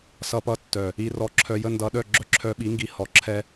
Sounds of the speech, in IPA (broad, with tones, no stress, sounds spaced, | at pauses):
s ʌ˧ p ʌ˧ tː œ˨ | i˧ r ɔ˧ ǁʰ œ˧ j ə˦ n d ʌ˧ ɗ œ˦˨ ɡ͡ǁ œ˦ ǁʰ œ˧ ɓ i˨˦ ŋ ɡ i˧ h ɔ˨ ǁʰ ɛ˦